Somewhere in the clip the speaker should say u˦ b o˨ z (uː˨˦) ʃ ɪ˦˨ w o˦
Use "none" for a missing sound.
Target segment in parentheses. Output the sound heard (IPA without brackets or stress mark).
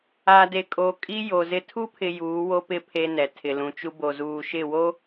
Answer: uː˨